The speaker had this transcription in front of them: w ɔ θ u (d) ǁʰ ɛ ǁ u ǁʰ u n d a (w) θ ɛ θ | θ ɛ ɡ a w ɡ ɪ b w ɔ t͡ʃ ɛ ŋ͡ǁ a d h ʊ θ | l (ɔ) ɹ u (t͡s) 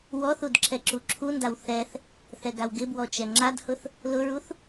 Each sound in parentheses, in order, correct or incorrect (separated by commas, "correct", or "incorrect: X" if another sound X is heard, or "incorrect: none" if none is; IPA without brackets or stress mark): correct, correct, incorrect: ʊ, incorrect: θ